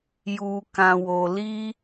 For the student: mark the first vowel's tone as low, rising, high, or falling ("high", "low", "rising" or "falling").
low